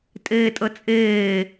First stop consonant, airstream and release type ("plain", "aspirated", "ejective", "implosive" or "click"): ejective